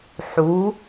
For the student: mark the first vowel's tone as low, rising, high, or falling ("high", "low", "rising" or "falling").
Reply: rising